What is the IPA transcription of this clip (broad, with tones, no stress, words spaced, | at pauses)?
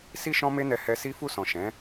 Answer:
si˦ʃɔ̃˦ me˦nɛ˧ hɛ˧ si˦fu˦˨sɔ̃˨ ʃɛ̃˨˦